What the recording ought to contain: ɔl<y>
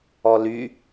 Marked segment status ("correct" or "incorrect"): correct